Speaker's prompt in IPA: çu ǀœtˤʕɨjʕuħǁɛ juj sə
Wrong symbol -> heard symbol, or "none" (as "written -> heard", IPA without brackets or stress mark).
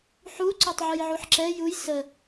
ç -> ħ